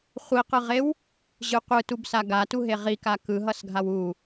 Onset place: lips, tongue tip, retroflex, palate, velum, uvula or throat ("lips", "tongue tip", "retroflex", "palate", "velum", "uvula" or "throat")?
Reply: uvula